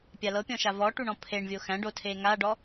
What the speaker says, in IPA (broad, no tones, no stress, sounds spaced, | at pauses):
pʲ a l ɤ pʲ ɔ̃ ʃ a v ɔ ʈ u ɳ ɔ̃ pʰ e ɳ vʲ o x æ̃ ɖ o tʰ e ŋ a ɖ ɔ